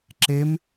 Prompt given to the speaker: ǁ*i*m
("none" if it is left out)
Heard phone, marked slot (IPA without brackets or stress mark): e